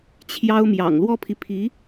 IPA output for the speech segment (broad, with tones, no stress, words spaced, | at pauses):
t͡ɕʰjɑ˥ʊ̯mjɑ̰˨˩ŋ lwɔ˥pʰi˨pʰi˧˥